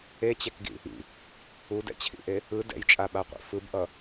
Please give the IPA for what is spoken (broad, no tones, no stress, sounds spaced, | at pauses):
e t͡ɕ ɛ k ɡ ḭ | ḭ | u d ɛ̰ t͡ɕʰ ḭ ʔ e | ɯ d ɛ̰ j t͡ʃʼ a ɓ a qʷ ḭ f ɯ b ʔ ʌ